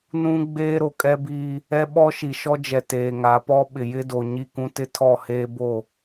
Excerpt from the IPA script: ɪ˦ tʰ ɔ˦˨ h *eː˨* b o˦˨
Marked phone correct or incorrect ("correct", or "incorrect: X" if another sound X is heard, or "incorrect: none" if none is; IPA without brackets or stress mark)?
incorrect: eː˦